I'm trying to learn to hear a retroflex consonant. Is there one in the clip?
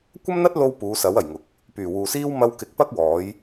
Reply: no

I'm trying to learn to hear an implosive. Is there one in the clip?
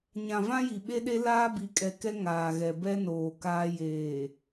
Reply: yes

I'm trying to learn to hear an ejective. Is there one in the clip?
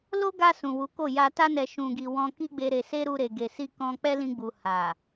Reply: no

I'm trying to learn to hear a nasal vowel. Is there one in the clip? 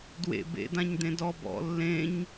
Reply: yes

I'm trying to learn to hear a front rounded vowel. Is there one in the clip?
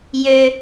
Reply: yes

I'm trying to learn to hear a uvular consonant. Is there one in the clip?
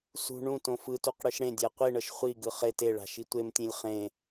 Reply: yes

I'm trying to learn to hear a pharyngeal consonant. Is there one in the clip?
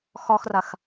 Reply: no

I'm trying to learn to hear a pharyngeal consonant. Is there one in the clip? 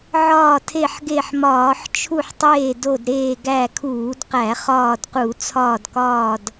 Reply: yes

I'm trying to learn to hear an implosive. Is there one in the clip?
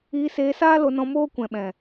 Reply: yes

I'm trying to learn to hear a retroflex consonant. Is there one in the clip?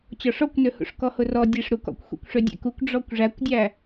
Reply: yes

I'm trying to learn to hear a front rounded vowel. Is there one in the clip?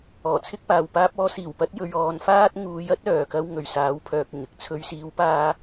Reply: yes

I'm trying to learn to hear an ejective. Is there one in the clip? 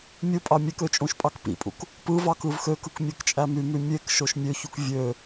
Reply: yes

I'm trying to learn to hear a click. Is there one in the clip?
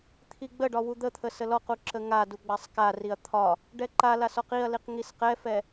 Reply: yes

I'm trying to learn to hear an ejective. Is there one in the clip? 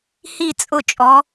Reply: yes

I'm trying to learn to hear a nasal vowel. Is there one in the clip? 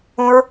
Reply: yes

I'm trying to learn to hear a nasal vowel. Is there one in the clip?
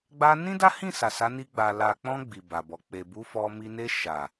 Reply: yes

